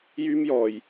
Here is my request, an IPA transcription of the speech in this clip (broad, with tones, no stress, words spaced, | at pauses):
jyː˥mjɔː˧j